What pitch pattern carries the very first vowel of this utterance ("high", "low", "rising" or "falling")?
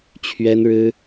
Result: high